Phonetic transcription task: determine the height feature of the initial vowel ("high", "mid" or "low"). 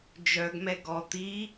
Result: mid